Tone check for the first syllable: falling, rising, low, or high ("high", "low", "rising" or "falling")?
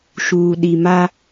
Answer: low